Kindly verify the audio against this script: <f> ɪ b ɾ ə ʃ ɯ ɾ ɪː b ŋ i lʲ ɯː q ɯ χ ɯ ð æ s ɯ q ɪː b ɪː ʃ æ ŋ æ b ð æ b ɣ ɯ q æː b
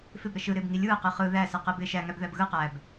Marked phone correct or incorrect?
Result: correct